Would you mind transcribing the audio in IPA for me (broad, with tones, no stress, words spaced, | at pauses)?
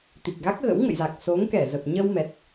t̪i˨˩k̚ɣa˦˥k̚ɣə̰˧˥w ŋə̰˧˨jza˨˩k̚ so˨˦ŋ kɛ˧˩zə˨˩p̚ ɲə˧wmɛ˨˩t̚